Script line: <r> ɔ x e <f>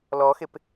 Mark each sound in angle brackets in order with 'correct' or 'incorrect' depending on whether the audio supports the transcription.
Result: incorrect, incorrect

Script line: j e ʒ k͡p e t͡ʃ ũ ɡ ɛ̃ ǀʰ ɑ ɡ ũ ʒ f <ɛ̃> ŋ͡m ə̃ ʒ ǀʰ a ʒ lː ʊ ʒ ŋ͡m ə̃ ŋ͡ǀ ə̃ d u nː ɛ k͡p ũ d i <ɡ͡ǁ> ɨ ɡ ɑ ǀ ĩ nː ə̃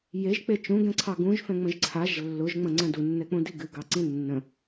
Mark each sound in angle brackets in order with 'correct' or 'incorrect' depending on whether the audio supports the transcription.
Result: correct, incorrect

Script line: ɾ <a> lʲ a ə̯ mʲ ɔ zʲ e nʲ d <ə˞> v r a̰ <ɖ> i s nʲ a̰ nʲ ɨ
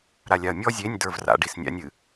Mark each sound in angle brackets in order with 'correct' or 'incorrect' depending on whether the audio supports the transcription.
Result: correct, correct, correct

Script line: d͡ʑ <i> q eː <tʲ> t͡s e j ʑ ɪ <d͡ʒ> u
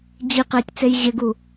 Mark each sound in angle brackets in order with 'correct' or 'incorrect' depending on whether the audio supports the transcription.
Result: correct, correct, incorrect

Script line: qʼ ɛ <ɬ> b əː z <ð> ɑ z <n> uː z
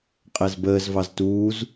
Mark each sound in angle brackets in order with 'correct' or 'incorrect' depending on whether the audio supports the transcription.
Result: incorrect, incorrect, incorrect

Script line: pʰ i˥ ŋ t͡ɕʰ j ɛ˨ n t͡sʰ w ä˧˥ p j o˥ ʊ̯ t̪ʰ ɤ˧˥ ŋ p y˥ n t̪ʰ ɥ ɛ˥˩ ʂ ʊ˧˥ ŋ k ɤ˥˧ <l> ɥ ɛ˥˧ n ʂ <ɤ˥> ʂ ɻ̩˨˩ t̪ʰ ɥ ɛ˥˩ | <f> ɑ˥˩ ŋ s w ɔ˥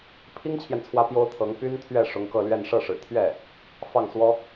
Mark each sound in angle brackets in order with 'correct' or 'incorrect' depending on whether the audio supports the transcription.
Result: correct, incorrect, correct

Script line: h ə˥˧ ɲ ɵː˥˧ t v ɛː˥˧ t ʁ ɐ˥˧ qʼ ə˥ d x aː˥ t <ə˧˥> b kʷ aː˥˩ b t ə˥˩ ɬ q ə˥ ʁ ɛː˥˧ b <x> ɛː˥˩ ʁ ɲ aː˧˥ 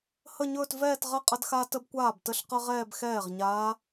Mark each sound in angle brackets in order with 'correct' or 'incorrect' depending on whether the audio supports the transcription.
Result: correct, correct

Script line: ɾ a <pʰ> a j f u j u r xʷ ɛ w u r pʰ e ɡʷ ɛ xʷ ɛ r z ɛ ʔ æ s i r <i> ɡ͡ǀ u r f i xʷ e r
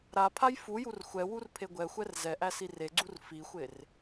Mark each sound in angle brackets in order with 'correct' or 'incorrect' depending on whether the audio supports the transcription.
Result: correct, incorrect

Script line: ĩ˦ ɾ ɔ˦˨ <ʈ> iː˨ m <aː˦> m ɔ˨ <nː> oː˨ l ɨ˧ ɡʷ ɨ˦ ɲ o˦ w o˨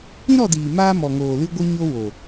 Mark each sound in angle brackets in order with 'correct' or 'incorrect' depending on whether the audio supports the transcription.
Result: incorrect, correct, incorrect

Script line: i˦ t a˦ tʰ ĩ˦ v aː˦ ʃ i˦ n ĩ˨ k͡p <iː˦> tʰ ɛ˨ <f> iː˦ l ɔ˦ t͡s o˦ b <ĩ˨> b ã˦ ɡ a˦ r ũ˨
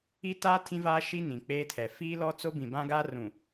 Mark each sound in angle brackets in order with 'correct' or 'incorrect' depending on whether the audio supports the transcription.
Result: incorrect, correct, correct

